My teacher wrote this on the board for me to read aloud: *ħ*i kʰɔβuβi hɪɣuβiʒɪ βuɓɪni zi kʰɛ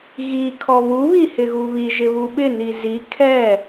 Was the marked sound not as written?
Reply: yes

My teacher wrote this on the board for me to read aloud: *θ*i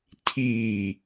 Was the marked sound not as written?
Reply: yes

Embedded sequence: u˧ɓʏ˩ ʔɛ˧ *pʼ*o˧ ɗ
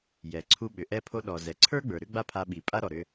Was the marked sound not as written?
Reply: yes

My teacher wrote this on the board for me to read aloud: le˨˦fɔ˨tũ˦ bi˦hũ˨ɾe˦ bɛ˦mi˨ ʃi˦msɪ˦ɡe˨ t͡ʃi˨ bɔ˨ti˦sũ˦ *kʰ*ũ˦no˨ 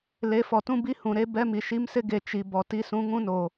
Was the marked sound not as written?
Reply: yes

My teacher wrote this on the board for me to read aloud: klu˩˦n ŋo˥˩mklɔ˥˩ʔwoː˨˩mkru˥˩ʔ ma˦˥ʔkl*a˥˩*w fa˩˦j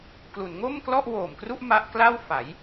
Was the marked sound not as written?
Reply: no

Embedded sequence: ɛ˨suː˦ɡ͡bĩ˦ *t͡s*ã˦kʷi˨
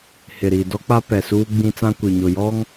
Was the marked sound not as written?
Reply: no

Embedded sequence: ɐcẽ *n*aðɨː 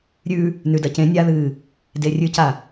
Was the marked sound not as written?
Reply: yes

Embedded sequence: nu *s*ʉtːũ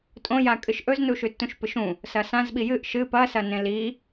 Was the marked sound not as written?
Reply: yes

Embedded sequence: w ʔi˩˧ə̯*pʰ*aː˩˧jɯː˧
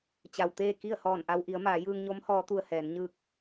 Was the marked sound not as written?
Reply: yes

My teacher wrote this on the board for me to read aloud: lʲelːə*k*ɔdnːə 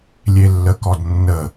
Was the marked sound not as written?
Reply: no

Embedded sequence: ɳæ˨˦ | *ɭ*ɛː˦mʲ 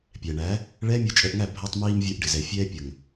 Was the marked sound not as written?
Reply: no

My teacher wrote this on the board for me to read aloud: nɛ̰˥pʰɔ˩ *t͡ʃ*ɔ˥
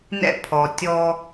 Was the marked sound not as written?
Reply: yes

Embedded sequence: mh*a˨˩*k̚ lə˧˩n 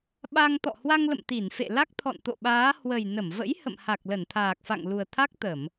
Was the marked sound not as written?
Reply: no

